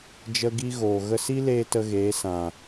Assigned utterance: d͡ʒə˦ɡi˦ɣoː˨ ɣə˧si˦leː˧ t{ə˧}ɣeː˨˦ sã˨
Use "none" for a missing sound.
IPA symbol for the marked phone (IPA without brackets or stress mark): ə˧